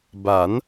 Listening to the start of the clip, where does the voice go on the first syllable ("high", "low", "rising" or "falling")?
rising